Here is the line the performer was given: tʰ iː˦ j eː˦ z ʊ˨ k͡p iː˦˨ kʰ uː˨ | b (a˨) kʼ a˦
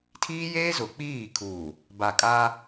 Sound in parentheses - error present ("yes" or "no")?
no